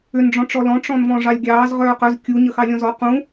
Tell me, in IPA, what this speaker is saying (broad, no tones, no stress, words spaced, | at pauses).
ʏn ɖ͡ʐɔ̃ʈ͡ʂɔlɔ̃ ʈ͡ʂɔ̃nvɔ̃ʐɑlʲɡʲɑːz ʁœːqœz kʲu ɲəxɑlʲɔ̃zɔ qũ